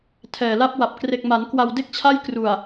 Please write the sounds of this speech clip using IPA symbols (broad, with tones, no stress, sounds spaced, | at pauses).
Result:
tʰ ɛː˨˩ l a˦˥ p̚ w a˨˩ p̚ k r e˨˩ k̚ m a˩˦ n k w a˧ w d e˥˩ k̚ t͡ɕʰ a˥˩ j k r u˨˩ a̯